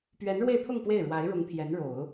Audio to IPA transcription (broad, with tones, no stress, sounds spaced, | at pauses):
p ɥ ɛ˧˥ n ɻ w e˥˧ ɪ̯ t̪ʰ ʊ˥˧ ŋ p w e˥˩ ɪ̯ ɻ w a˧˥ ɪ̯ ɻ ʊ˧˥ ŋ t̪ʰ j ɛ˧˥ n ɻ o˨˩˦ ʊ̯